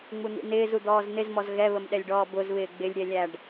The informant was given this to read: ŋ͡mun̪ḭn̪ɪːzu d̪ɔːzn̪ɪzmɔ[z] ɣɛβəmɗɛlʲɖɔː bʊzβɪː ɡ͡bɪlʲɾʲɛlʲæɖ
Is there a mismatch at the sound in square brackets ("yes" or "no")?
no